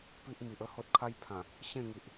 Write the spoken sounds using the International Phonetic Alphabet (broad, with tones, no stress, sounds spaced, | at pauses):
p i˦ ʔ m i˨ ʔ ə˦ h o˦ t̚ kʰ a˦ j pʰ ã˨˩ | ɕ ẽ˥˧ ŋ i˨ ʔ